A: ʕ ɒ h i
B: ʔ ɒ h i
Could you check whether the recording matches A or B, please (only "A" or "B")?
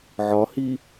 A